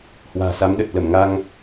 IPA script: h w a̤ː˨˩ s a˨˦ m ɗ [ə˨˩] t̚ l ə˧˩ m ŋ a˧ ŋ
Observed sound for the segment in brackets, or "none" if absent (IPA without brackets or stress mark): ə˨˩